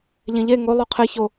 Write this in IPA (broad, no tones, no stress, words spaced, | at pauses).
ʎẽʎe ŋo lˠoqʰe ço